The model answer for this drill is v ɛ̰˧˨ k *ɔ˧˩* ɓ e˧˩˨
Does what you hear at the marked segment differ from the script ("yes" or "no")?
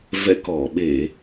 no